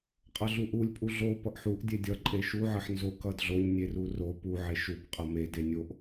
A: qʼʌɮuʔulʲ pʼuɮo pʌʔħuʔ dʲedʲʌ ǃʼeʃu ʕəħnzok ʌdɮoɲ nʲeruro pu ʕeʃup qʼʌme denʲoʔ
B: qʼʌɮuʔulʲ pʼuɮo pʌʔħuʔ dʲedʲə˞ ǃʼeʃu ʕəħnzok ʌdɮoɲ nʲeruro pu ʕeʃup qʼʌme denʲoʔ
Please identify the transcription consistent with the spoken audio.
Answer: A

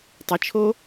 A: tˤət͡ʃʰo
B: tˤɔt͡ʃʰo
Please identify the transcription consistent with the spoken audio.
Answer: A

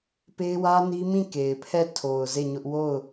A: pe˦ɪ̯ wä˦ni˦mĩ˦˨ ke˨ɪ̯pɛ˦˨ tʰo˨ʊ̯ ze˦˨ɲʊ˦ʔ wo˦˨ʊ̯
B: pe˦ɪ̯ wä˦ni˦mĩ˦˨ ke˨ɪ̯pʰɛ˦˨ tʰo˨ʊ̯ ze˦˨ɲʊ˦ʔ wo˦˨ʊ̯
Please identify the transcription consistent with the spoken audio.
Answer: B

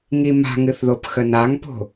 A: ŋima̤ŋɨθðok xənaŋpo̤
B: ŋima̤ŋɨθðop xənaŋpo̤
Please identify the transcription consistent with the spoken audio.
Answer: B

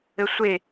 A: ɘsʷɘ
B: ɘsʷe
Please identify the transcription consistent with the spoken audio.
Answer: B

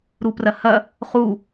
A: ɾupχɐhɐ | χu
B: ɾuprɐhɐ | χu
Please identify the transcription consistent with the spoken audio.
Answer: B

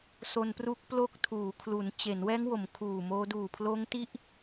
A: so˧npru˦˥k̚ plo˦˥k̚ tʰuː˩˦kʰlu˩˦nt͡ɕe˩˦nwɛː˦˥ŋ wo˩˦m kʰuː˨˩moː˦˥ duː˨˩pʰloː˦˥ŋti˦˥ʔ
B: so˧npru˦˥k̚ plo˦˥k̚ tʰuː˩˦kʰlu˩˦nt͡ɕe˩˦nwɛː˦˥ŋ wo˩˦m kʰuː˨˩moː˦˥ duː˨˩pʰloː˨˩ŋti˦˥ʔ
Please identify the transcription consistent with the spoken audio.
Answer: A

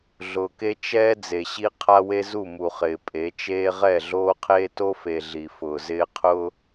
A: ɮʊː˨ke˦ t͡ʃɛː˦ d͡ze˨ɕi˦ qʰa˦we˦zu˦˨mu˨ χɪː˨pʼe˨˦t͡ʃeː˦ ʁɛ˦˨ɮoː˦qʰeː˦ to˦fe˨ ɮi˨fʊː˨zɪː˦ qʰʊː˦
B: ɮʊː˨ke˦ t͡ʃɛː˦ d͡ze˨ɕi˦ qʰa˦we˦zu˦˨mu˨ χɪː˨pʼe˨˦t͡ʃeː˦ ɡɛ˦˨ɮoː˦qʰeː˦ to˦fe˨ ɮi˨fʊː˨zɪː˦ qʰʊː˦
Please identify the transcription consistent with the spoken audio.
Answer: A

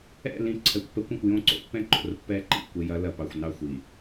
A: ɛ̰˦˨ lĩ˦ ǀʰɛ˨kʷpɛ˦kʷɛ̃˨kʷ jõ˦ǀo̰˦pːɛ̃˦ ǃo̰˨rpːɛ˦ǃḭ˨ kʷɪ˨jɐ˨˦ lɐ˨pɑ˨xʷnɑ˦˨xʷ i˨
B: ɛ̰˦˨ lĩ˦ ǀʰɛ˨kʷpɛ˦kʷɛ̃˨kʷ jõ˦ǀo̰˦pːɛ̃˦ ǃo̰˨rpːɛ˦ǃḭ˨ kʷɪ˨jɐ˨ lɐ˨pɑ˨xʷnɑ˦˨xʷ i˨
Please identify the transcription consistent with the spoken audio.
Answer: A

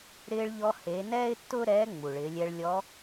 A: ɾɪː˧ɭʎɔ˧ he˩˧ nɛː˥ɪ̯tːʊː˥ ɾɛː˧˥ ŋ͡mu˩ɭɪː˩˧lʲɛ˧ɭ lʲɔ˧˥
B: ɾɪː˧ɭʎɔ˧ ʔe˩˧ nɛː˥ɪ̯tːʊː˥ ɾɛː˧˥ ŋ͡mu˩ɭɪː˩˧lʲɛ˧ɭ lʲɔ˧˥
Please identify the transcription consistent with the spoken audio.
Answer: A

